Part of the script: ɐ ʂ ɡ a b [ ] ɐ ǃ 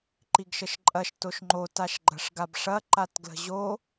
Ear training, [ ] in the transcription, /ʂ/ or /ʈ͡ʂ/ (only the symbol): ʂ